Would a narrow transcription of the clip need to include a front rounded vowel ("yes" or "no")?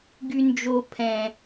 yes